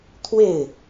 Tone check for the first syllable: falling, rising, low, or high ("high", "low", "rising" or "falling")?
falling